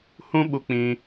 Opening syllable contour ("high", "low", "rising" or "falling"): high